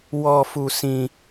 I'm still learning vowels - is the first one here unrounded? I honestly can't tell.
no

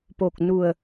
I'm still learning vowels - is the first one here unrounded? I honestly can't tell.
no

